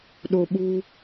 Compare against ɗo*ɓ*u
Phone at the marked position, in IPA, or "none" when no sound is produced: ɓ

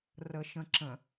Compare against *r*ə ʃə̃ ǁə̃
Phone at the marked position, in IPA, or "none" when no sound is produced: r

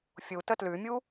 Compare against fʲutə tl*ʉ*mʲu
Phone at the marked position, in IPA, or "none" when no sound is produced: ʉ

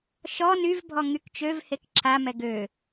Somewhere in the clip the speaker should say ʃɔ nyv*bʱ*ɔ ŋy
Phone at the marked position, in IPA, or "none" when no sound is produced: bʱ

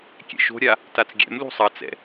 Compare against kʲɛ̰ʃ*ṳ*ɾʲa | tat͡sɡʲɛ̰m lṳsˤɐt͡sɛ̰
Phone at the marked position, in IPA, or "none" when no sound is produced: o̤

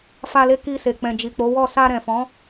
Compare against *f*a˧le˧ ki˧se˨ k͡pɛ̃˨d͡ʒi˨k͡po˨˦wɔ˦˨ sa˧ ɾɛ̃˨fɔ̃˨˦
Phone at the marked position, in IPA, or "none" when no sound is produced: f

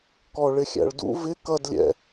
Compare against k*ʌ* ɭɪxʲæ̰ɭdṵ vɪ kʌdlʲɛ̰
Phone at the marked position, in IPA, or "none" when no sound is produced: ɔ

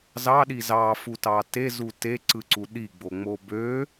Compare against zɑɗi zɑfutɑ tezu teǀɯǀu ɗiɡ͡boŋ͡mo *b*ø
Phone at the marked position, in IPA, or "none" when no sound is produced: b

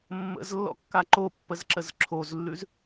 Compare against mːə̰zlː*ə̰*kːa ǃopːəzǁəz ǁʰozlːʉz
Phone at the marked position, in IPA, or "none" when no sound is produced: ɔ̰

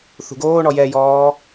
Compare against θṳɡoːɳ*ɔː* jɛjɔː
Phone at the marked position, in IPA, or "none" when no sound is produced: ɔ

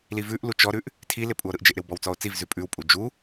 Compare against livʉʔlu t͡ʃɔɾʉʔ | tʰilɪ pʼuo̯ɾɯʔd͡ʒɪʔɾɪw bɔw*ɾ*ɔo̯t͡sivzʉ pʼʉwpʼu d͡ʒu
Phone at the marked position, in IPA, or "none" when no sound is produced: t͡s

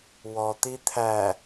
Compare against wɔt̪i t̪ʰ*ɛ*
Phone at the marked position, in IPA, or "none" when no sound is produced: æ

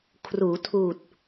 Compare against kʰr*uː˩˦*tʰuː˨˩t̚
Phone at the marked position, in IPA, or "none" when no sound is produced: uː˩˦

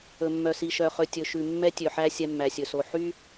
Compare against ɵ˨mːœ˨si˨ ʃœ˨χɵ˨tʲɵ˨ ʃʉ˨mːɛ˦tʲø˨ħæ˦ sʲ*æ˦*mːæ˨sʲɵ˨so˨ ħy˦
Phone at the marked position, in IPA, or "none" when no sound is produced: ɛ˦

